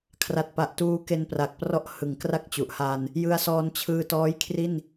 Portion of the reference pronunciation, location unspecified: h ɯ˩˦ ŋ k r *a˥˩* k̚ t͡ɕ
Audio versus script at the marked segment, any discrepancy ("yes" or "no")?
no